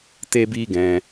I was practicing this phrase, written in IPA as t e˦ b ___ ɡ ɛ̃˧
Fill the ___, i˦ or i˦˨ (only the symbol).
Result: i˦